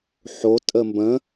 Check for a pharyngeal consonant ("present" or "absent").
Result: present